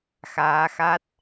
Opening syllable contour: rising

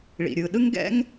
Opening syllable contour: low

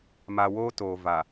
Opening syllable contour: low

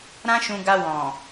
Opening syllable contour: high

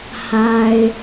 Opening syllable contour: low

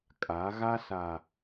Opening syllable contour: rising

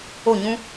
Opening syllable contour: falling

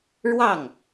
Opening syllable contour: falling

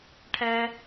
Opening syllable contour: high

